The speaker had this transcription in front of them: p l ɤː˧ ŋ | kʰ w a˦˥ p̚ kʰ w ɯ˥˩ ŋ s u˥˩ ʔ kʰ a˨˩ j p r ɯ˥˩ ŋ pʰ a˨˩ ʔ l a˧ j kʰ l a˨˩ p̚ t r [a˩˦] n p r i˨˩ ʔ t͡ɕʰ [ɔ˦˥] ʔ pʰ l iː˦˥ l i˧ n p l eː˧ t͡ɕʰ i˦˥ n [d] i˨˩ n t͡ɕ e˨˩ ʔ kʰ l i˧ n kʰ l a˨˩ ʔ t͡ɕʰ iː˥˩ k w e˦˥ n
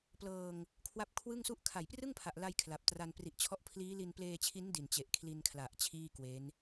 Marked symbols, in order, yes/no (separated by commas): no, yes, yes